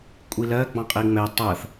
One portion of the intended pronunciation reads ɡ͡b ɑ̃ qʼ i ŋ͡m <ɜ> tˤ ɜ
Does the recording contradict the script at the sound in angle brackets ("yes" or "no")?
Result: yes